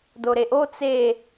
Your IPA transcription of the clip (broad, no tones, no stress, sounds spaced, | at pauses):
d o ɾ e ʔ o t͡s e